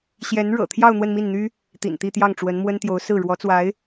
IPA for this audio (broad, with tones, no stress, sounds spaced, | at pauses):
ɕ j ɛ˧˥ n ɻ ɤ̰˨˩ t̪ʰ j ɑ˥˧ ʊ̯ n̪ w ə˥˧ n m i˥˩ n n̪ y˥ | t̪ ḭ˨˩ n t̪ i˥˧ t̪ j ɑ˥˩ ŋ ʈ͡ʂ w ə˧˥ n m w ə˥ n t̪ j o˧˥ ʊ̯ s ɹ̩˥˩ ɻ w ɔ˧˥ t͡s w a˧˥ ɪ̯